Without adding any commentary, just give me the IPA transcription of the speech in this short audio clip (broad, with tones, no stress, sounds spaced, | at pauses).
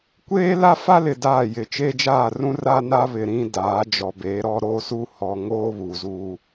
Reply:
kʷ eː˦ l a˦ f a˦ l ɪ˨ d aː˦˨ j ɪ˨ t͡ʃ eː˦ d͡ʒ aː˦˨ r ũ˦ r aː˦ n a˦ β ɪ˨ ɾ ĩ˦ d aː˨˦ d͡ʒ ɔ˨ b eː˨˦ ɾ ɔ˦ ɾ oː˦ s uː˦ h ɔ˨ ŋ oː˦ β u˨ z uː˦